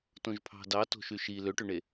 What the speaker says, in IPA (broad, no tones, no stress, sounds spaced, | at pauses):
t õ ʒ pʰ ɑ̤ d ɑ t o̤ ʃ y ʃ i l ø ʈ ø ɳ e